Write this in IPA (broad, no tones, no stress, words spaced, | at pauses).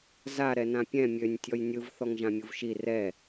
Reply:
za ɾɛnãpʲɛ̃ mʲønʲ tʲɔjnʲɯv θɔŋʒãmʲuvʃi rɛ